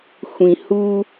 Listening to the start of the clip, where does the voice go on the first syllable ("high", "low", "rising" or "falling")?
low